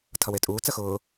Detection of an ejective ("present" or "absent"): present